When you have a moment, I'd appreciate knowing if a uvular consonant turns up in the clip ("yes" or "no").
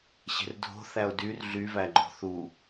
no